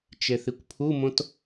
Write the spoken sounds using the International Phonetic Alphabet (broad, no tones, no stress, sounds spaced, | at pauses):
t͡ʃ e θ i kʷ pʰ u m õ t